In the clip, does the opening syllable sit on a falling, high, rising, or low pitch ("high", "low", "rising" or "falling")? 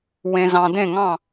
low